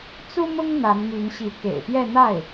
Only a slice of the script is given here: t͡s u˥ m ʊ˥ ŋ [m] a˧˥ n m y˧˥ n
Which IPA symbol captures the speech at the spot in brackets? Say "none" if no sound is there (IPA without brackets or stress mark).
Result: n̪